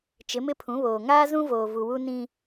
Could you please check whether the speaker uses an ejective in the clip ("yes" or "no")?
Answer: no